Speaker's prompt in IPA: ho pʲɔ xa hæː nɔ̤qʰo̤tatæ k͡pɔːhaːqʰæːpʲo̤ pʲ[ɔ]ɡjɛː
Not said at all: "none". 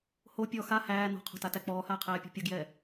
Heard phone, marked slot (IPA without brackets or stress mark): ɔ